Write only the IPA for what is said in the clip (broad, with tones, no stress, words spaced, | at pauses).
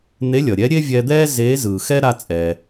n̪e˧˥lʲʌ˩ɾʲɛ˧˥ ɾʲe˥vʲɛ˧d̪ɛː˥ zeː˧˥zɯː˩xɛ˥ ɾa˧t͡sʼɛː˩